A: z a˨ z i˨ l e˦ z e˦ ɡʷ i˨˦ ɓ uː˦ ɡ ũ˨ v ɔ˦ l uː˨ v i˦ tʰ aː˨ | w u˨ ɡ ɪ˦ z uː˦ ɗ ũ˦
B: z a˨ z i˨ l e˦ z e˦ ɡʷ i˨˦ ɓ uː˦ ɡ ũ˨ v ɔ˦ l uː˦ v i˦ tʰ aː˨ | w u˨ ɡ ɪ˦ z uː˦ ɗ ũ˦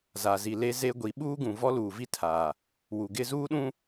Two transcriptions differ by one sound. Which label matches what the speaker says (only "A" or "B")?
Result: A